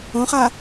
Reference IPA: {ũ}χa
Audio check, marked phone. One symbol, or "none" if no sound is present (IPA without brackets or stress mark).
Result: õ